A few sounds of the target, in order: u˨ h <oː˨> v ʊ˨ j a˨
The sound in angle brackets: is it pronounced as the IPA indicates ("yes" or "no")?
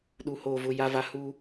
yes